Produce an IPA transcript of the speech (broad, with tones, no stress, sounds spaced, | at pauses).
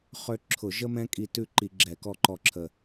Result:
χ ø˦ ǁʰ ʊ˧˩˧ ʒ ə˦ m ɛ̃˦ kʼ i˧˩ t ʉ˥˨ ǃ i˧˩˧ ɡ͡ǁ ɛ˧˩˧ k ɔ˥˨ ǃ ɔ˦ ǁʰ ə˧˩